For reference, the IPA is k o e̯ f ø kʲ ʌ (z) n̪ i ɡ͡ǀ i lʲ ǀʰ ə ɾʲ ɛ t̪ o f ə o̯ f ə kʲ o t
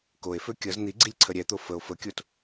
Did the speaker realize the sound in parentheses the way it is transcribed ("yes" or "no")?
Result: yes